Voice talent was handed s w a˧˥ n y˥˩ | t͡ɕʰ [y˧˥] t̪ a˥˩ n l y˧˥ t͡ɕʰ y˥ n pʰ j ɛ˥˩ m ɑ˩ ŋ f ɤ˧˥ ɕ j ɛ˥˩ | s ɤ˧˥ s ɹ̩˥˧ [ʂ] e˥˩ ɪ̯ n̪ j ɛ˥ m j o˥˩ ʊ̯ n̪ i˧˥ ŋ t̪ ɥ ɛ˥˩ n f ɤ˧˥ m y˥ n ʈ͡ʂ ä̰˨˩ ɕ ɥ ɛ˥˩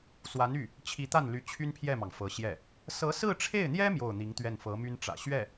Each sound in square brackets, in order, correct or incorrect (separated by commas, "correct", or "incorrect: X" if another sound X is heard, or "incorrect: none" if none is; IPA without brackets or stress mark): incorrect: i˧˥, incorrect: ʈ͡ʂʰ